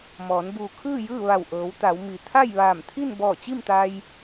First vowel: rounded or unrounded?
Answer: rounded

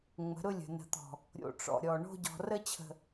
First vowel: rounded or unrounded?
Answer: unrounded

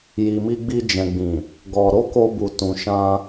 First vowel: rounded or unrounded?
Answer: unrounded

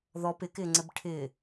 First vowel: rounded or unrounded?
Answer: rounded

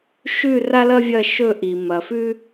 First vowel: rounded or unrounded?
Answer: rounded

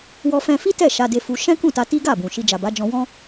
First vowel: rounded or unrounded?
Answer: rounded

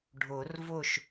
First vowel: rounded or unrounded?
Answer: rounded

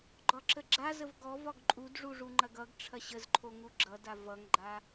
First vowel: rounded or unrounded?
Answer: rounded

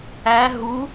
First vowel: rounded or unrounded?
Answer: unrounded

